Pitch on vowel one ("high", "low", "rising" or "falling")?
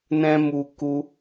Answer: high